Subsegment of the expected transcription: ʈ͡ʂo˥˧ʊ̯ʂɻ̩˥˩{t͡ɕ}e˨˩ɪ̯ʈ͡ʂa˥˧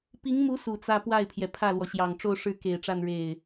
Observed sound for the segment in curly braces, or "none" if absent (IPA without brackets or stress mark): k